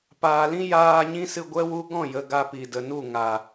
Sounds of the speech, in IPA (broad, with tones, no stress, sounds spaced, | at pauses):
p aː˨ l ĩ˦ j aː˧ ɲ ĩ˦ s ɨ˧ ɡʷ ɛ˦ w u˦ ɡ ɔ̃˦˨ j ə˨ ɡ a˧ p i˨ d ə˨ n u˦˨ ŋ a˨